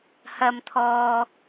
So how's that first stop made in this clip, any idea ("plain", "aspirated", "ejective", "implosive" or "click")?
aspirated